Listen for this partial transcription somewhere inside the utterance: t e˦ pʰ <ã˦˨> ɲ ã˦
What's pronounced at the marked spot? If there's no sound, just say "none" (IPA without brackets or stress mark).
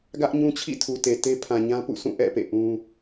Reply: ã˨